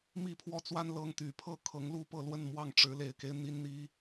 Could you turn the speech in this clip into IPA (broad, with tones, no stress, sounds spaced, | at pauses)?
m i˥˨ pʰ w ɔ˦ t͡s w a˦ n l ɤ˦ ŋ t̪ y˨˩ pʰ ɤ˥˨ kʰ ɤ˨˦ ŋ l u˥˨ p ɤ˥˨ l w ə˥˨ n m w ɑ˥˨ ŋ ʈ͡ʂ ɻ̩˨˦ l e˨˩ ɪ̯ k e˦ ɪ̯ n̪ i˦ n n̪ i˦